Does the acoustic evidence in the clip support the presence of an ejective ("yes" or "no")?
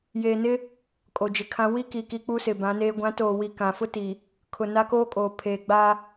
yes